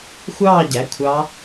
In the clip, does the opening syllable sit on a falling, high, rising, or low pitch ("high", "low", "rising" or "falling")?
falling